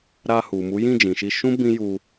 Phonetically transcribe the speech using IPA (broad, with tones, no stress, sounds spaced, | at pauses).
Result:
ɾ a˧ h u˨ m u˨˦ j ĩ˦˨ d͡ʒ ĩ˨ ʃ i˧ ʃ ũ˦ b ĩ˦ j u˧